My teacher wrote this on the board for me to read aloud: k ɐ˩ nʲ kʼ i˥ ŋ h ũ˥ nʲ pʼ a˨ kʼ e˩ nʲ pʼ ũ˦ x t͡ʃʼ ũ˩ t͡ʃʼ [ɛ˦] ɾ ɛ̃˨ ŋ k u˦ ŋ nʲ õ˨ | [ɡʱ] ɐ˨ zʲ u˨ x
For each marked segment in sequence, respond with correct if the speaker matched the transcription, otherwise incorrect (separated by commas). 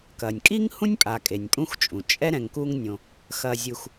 correct, incorrect